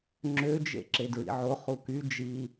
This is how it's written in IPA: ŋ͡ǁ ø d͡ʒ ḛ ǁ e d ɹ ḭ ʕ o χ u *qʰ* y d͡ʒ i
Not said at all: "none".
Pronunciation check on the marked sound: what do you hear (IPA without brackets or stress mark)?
k